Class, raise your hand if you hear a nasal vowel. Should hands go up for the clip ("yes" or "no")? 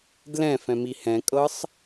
yes